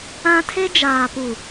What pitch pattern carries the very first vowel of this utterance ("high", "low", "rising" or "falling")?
high